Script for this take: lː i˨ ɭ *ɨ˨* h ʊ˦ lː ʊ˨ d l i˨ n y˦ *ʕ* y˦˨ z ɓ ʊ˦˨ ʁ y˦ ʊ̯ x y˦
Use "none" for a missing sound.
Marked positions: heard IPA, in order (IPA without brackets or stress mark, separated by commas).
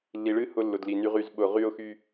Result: ɨ˦, ʁ